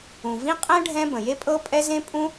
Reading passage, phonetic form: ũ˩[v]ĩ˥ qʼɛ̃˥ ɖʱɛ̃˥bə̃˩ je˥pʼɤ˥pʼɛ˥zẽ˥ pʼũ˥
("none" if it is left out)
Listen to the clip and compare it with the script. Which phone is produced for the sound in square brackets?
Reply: v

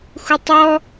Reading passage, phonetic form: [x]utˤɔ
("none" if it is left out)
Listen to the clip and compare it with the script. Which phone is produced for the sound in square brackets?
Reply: x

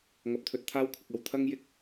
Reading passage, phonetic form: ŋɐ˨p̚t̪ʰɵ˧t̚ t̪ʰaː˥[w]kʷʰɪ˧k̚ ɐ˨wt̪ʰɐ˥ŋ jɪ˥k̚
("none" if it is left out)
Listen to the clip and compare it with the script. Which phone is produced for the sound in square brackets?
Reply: w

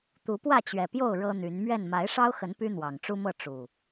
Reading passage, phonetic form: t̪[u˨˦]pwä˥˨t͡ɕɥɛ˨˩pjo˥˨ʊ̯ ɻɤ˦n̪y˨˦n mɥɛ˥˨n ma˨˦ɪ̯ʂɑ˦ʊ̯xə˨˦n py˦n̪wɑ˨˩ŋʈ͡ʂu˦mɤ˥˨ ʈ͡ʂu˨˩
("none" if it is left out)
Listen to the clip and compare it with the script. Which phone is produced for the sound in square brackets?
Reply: u˨˦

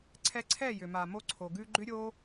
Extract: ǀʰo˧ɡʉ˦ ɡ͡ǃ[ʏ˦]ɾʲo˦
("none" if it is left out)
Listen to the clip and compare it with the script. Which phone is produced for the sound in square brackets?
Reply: ʏ˦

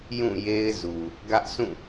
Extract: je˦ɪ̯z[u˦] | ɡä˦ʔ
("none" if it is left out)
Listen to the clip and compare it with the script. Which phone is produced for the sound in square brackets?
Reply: u˨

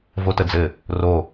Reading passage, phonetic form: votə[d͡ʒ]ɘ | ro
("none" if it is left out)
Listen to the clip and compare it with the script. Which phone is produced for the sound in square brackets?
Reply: d͡z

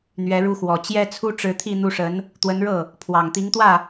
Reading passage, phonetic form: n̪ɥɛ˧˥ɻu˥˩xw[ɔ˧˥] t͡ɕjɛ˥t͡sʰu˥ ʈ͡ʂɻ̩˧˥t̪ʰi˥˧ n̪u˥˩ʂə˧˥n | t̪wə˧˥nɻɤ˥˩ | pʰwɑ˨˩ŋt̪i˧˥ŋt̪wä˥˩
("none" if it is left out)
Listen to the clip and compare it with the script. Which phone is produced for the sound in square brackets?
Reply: ɔ˨˩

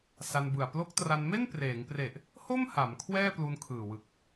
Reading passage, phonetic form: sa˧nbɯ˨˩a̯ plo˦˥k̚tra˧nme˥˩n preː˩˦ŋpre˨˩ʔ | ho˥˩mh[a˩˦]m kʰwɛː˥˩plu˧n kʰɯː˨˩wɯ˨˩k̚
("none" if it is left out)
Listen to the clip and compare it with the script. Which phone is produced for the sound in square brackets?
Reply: a˩˦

